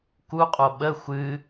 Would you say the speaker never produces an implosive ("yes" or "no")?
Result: no